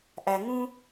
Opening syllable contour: low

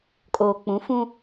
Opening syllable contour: low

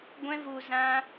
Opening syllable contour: high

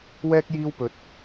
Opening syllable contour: high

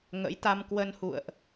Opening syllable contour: rising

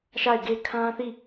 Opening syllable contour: falling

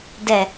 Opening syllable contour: low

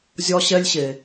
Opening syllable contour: high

